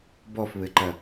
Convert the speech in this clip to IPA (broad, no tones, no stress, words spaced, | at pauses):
bɔfβɘǃɐ